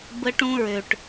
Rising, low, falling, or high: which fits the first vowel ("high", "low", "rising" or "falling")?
high